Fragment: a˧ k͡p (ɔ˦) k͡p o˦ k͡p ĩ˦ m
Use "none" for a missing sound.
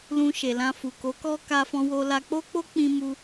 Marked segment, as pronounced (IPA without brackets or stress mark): o˦